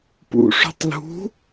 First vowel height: high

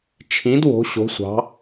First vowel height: high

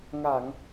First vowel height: low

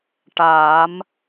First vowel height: low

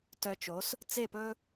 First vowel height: mid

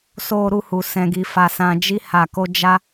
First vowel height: mid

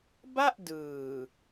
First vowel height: low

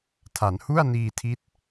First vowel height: low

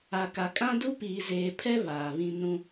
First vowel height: low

